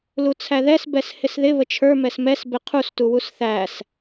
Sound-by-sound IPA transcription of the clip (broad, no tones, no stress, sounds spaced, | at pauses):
l u t͡sʰ æ ð ɛ s b ɛ s h ɪ s ð ɪ β ə t͡ʃʰ ə˞ m ɛ s m ɛ s b ɪ qʰ u s t u w u s θ æ s